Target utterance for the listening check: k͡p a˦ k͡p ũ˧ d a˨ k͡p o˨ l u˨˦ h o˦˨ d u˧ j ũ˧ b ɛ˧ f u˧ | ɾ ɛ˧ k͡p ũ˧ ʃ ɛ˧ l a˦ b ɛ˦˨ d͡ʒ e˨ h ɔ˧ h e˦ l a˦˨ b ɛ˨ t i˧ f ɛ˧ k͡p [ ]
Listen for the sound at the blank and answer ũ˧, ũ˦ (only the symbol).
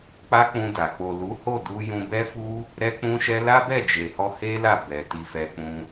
ũ˧